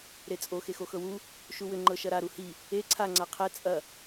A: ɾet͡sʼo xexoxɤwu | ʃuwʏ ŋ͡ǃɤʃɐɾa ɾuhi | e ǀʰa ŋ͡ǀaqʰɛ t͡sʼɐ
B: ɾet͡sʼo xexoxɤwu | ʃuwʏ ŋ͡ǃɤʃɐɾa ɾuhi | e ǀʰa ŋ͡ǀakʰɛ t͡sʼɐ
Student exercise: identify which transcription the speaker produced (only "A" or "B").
A